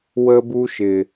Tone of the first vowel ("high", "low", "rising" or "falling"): high